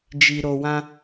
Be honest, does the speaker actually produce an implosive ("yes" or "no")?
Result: no